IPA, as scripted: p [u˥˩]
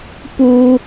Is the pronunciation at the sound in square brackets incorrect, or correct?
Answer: incorrect